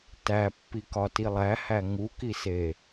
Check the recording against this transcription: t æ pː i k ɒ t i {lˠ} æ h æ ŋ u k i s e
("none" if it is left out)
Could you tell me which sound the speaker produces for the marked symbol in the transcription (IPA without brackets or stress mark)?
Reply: lˠ